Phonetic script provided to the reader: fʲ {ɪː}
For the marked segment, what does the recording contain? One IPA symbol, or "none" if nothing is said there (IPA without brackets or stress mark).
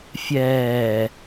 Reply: ɛː